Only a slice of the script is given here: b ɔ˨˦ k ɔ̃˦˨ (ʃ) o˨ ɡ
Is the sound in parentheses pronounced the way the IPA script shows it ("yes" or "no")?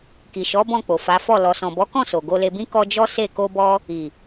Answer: no